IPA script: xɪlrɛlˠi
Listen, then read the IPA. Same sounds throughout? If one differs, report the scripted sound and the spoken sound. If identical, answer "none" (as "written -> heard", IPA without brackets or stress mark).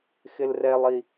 none